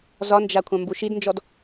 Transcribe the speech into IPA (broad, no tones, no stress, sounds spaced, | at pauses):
z ɒ n d͡ʒ a kʷʰ ã m b u ʃ i d n d͡ʒ ɔ d